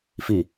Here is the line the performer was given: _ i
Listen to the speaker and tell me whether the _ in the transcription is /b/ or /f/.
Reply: f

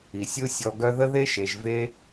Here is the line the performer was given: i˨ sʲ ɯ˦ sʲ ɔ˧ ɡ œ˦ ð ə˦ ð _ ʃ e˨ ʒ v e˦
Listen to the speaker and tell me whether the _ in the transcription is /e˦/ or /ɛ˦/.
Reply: e˦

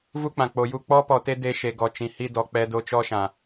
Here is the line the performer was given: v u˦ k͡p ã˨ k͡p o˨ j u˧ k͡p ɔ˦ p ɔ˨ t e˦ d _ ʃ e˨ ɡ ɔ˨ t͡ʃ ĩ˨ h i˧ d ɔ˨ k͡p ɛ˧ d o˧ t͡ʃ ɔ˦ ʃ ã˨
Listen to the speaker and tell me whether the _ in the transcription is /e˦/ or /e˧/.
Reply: e˧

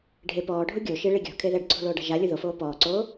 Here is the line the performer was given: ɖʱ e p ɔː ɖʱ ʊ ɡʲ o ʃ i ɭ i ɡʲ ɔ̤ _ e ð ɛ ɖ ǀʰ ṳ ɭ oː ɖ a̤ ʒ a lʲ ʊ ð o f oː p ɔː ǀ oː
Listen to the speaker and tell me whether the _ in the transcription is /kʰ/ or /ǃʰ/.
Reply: kʰ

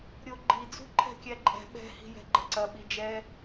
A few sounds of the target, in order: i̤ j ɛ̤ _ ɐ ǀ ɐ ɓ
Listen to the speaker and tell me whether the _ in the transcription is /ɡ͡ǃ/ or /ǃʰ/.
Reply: ɡ͡ǃ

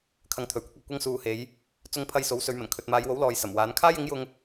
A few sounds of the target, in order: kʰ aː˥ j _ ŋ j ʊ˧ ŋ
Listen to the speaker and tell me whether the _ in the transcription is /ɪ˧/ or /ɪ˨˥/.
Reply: ɪ˨˥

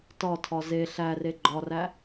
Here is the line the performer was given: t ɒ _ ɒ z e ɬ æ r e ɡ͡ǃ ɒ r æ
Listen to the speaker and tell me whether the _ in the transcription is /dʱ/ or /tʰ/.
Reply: tʰ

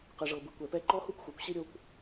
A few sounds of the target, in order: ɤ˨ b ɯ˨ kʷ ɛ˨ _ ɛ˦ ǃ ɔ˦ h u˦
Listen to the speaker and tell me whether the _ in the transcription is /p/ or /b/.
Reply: p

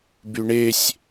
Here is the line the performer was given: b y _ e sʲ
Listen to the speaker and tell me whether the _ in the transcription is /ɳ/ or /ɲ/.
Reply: ɳ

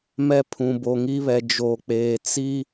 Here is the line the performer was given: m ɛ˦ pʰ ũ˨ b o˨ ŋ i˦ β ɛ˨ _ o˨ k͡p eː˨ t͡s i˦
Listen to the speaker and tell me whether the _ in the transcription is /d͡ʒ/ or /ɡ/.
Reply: d͡ʒ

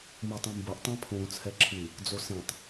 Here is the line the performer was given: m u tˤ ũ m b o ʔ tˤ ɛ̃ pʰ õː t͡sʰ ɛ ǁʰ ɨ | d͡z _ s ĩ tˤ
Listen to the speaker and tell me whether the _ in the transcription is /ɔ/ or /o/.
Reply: o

